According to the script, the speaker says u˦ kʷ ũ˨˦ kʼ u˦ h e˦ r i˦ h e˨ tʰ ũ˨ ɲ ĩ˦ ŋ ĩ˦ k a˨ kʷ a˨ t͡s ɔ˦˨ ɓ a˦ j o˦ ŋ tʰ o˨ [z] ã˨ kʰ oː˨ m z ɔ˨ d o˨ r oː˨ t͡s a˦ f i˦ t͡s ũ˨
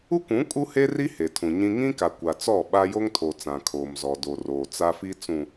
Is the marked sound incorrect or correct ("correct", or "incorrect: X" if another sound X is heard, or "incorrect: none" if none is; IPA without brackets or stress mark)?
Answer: incorrect: t͡s